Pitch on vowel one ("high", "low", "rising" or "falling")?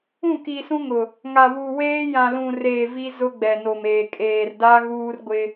falling